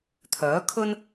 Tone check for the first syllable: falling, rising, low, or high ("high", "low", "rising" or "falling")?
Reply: rising